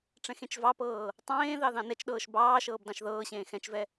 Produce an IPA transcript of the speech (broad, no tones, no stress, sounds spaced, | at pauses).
ʈ͡ʂ ɛ̃ x ẽ t͡ʃ v ɑ p ɤː | tˤ ẽː ð ɑ ð ɑ̃ n ɛ t͡ʃ ɗ ɤː ʃ b ɑː ʃ ɤː b d ɑ̃ ʃ ð ɤː ɕ ẽː x ɛ̃ t͡ʃ v ɛ